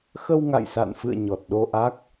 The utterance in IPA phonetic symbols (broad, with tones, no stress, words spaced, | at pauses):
xə˧wŋa̰˧˨jsa̰˧˨nfɨ̰˧˨ə̯ ɲɔ˨˩t̚ɗo˧ʔa˦˥k̚